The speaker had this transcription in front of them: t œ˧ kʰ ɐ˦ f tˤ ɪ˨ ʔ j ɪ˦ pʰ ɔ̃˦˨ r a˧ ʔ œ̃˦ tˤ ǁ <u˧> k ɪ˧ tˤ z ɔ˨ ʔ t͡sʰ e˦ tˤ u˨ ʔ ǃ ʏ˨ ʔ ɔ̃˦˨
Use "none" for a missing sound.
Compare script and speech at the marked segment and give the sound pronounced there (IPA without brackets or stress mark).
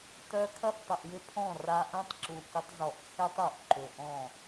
u˨